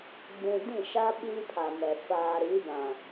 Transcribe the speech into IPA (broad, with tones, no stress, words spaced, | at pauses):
ɡ͡bũ˨dĩ˦˨ʃa˦ ɓi˦pʰa˨mɛ˨ faː˨ɾi˨˦bã˨